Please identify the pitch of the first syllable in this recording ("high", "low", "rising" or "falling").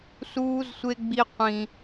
high